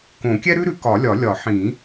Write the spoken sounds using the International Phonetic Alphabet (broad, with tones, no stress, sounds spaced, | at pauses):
k õ˨˩˦ kʲ ɛ˥ ɾ ʉ˥ ɾ ʉ˨˩˦ k ɒ˨˩˦ lʲ ɒ˨˩˦ lʲ ɒ˨˩˦ ħ ĩ˨˩˦